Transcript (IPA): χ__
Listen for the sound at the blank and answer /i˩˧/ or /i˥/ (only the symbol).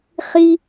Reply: i˥